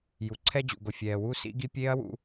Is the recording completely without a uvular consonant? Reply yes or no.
yes